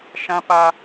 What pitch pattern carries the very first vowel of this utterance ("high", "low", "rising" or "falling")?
high